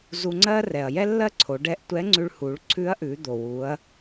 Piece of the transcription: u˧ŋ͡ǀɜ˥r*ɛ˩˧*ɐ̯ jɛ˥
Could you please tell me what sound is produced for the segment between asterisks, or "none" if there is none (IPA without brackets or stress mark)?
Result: ɛ˩